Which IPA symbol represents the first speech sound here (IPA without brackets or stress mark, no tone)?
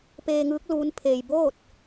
p